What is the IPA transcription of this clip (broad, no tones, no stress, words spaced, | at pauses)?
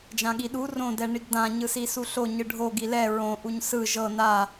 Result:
d͡ʒãɠiɗu rõdɛ ɳiɡdã ɲɯsisuɬo ɲɯɖʱoɡi lɛ ɹõ ʔuɲsɯ ʒɤ na